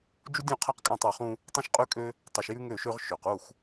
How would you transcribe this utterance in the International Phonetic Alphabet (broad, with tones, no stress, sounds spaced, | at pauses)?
d͡ʒ u˦ dʲ ũ˦˨ qʰ a˦ q kʼ ã˦˨ tˤ u˨ χ ũ˦ | tˤ õ˦ ʃ qʼ ʉ˦ kʼ ø˦ | tˤ ʉ˨ ʃ j ʉ˦ ŋ ø˦˨ ʃ ø˦ ʁ ʃ ø˨ q u˦˨ x